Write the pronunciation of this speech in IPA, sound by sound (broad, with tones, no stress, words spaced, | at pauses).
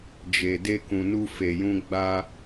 d͡ʒe˨ de˧kũ˨ nu˧fe˨ jũ˧ ɡ͡ba˧